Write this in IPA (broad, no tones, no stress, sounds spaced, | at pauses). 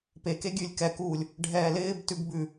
p e k e ɡʲ ʉ lʲ k ɛ k uː lʲ | ɖʱ ɛː l ɪː b t ʉ ɡ b ʉ